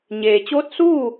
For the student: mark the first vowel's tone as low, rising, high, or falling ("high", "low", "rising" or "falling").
low